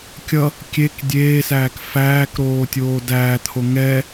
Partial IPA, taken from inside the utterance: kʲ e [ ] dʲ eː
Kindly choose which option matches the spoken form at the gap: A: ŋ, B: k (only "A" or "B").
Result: B